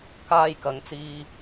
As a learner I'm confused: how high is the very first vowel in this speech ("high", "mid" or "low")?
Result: low